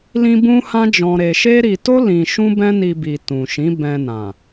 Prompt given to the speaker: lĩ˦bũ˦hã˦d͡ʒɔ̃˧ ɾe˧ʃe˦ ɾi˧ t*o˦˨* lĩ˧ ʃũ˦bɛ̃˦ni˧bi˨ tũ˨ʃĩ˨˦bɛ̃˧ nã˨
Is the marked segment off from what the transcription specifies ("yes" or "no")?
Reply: yes